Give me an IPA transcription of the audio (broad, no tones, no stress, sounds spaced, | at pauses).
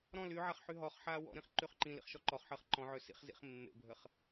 ɾ ɔ̃ l y ʕ a χ ħ y ɦ ɔ χ ħ aː w ɔ̰ ɾ ĩ χ ǃ y χ ǃ ĩ l ḭ χ ʃ ɔ ǃ ɔ χ ħ əː χ ǃ ɔ̃ ʕ ø s ḭ χ z ḭ χ mː ḛ bʱ ə χ